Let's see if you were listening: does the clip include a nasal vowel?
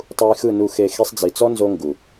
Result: no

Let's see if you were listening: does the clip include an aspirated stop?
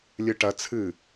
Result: yes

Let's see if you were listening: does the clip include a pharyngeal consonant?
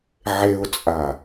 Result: yes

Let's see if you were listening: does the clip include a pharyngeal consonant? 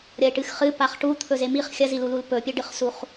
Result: no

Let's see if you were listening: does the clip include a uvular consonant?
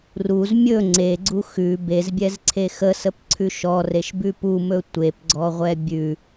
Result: yes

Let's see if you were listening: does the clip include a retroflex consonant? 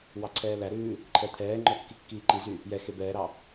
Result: no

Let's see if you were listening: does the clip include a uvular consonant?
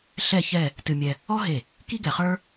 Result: yes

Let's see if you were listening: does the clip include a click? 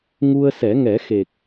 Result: no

